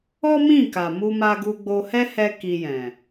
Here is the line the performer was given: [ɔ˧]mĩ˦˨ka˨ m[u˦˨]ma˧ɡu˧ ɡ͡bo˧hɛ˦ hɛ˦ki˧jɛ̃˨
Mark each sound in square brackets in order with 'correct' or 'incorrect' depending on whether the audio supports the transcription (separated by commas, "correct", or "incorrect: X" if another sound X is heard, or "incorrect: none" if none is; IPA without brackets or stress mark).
incorrect: ɔ˦, incorrect: u˧